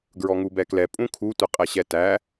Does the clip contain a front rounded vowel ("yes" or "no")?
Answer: no